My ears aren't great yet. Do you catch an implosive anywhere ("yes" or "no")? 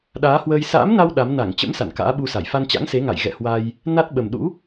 yes